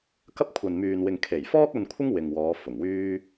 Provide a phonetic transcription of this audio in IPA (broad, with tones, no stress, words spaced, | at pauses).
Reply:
kɐ˥p̚ kʷʰɐ˨nmyː˨nwɪ˨ŋ kʰe˨˩jfɔː˥k̚ ɐ˧nkʷʰɪ˥ŋ wɪ˨ŋwɔː˨˧ fʊ˨˩ŋwyː˥